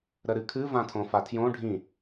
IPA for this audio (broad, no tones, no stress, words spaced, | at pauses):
ɾəɾɨkʰɨ vãtʰõfatʰjõ ɖʱĩ